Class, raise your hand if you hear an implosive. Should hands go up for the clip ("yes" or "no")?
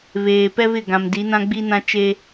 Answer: no